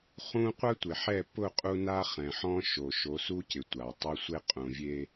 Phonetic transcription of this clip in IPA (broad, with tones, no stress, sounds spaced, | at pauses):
χ ũ˦ qʷ a˦ tʷ ɪ˨ ħ ɛ˦˨ p ʊ˦˨ qʼ u˦ n a˦ χ ɛ̃˨ ħ ɔ̃˦ ʃ o˨ ʃ o˨˦ s u˦ c ɪ˨ tʷ a˨ tˤ ʊ˦ sʷ e˦ qʼ ũ˨ vʲ e˨